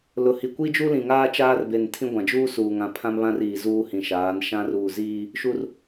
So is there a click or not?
no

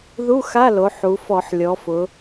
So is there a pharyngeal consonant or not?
yes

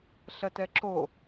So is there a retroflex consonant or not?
no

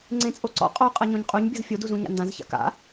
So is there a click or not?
yes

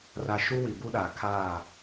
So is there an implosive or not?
yes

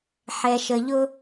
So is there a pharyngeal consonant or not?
yes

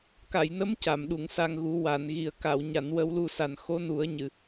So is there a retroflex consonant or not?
no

